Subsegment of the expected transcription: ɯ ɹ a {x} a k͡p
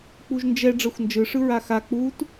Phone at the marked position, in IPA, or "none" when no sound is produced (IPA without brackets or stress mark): x